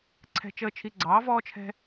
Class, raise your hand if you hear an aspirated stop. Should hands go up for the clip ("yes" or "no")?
yes